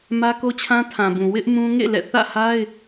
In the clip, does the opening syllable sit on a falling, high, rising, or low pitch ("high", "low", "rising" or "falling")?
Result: high